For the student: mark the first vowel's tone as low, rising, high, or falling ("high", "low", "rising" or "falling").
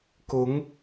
rising